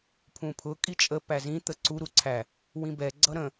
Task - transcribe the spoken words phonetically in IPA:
pʰ ũ pʰ ʊ kʼ i t͡ʃʼ ə p æ z ĩ t̪ ə ǀ u ɾ u ǀʰ æ | w ĩ b ɛ ɡ͡ǀ ʌ ɾ ə̃

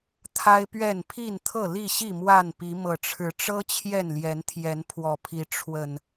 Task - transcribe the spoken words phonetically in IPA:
t̪ʰ a˦ ɪ̯ p ɥ ɛ˥˨ n pʰ i˥˨ n t̪ʰ ɤ˥˨ l i˥˨ ɕ i˥˨ m w a˥˨ n p i˨˦ m ɤ˨˩ ʈ͡ʂʰ ɻ̩˨˦ ʈ͡ʂ ɤ˦ t͡ɕʰ j ɛ˥˨ n l j ɛ˨˦ n t̪ʰ j ɛ˨˦ n pʰ w ɔ˨˩ pʰ i˨˦ ʈ͡ʂʰ w ə˨˩ n

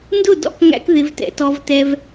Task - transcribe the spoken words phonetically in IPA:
n d ʊ˥˨ d ɔ̰˥˨ k ŋ æ̰˦ k ð ɪ˦ v t ɛ̰˦ t ɔ˦ v t ɛ˦ v

